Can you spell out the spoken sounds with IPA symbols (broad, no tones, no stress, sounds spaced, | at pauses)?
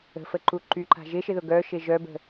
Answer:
ə̤ f ə ǃ u ǃ y ǃ a̤ ʒ ɪ ʃ ɪ ð ʊ ɡ œ ʃ ɪ ʒ œ b ə̤